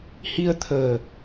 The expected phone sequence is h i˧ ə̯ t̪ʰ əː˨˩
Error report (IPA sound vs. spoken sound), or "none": none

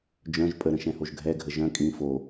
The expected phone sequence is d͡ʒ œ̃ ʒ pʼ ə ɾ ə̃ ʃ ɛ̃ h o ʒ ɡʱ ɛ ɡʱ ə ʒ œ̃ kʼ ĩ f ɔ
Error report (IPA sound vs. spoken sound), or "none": ɔ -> o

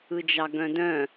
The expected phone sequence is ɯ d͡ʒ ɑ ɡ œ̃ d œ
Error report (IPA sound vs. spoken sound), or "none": œ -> œ̃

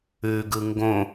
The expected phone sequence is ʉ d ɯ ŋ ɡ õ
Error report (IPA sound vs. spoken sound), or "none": d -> ɡ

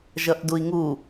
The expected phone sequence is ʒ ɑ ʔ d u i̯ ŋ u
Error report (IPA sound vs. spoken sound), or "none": ɑ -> ʌ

